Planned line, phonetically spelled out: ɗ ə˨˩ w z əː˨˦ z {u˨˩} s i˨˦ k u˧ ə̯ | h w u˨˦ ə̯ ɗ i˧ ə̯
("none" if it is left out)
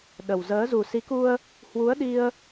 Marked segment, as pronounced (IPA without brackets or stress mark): u˨˩